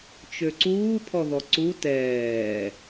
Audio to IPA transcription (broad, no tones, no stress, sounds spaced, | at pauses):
t͡ʃ ø ǀ uː pʰ ɔ ð ɔ ǀ u t ɛː